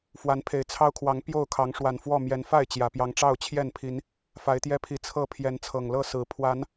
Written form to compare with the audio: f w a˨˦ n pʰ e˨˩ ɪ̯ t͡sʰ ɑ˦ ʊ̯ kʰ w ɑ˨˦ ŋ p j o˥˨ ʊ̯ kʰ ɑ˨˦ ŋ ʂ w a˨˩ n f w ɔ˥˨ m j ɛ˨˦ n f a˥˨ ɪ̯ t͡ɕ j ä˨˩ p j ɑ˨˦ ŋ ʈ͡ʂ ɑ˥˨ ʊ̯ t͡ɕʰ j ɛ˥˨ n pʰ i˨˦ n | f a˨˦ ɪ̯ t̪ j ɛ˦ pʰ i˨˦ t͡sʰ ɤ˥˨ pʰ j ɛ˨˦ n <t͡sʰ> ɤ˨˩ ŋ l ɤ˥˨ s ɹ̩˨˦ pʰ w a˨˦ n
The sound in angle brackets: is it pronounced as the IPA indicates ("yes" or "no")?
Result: yes